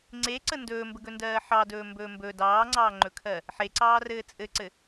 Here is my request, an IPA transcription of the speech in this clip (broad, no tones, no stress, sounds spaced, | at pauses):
ŋ͡ǀ e ǀ ə n d ɵː m b ə ɡ ɵ n d ɜː ħ ɑ d ɵː m b ɵː m b ɵ d ɑː ŋ͡ǀ ɑː ŋ͡ǃ ɵ kʰ ɜ | ħ e ǀ ɑː r ɘː t͡sʼ ɘ ǀ ɘ